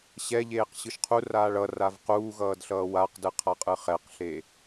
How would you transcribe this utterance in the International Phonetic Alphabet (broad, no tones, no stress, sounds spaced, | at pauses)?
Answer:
ɕ ɛ ʎ eː q ɕ ɯ ʃ qʰ u r aː ɭ ʌ r a v q uː ɣ ʌː d ɬ ʌː w a q d ɯ qʰ a qʼ ɯ χ ɛ q ɬ e